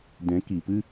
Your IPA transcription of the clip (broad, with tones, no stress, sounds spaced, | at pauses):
d ɛ̃˨˦ k i˨ p ɨ˦